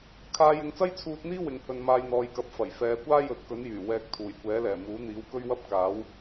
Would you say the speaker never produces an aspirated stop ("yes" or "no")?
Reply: no